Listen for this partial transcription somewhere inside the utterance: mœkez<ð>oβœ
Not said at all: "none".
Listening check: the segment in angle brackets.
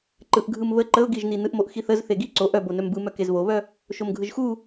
β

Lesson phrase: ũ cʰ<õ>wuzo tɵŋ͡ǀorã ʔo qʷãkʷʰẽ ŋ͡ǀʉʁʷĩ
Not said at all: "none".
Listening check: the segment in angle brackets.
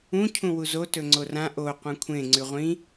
ũ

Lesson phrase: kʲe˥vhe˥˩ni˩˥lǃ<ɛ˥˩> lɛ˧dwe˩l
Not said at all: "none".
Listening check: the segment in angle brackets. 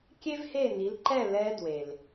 ɛ˥˩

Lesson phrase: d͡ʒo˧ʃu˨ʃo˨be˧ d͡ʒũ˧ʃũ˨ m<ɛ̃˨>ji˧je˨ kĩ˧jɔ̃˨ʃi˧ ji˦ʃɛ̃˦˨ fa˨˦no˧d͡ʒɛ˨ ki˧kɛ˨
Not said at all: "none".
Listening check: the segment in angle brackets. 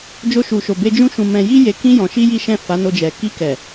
ɛ̃˨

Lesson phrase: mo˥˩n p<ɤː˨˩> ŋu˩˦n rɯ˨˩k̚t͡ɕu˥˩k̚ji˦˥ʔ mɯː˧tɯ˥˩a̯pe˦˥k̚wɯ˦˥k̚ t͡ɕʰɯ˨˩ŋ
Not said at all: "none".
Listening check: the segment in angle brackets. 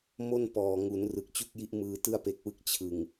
ɔː˨˩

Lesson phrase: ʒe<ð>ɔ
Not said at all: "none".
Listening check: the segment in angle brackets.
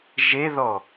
ð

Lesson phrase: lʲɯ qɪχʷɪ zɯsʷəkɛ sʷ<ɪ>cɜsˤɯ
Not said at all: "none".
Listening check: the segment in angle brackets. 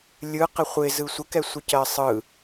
ɪ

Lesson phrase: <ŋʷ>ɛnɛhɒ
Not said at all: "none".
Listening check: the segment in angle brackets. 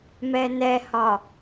m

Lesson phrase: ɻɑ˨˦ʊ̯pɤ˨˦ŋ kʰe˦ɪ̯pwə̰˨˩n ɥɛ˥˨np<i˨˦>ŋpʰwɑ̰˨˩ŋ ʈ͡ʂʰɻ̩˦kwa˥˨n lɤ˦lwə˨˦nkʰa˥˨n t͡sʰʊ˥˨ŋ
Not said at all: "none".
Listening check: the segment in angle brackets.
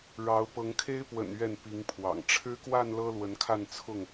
i˨˦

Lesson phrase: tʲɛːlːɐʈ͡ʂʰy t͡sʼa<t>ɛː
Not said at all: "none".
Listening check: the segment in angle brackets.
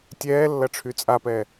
p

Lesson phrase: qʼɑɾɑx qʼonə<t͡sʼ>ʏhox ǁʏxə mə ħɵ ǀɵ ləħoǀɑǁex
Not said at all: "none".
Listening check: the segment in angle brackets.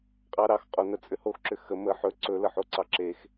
t͡sʼ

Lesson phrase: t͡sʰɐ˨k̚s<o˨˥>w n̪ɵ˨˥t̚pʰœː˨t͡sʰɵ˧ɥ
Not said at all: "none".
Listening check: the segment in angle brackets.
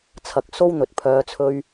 o˥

